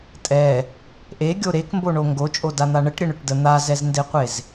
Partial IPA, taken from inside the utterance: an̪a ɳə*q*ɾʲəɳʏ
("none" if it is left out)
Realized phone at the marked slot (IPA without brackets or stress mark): ʈ